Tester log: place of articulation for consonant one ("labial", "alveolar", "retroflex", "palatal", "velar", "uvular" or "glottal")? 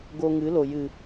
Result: velar